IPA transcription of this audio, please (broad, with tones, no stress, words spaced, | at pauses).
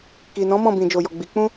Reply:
ki˨nɔ̃˨˦ mɔ̃˦˨bĩ˨d͡ʒo˨jɔ˨ ɡ͡bi˨˦ k͡pũ˦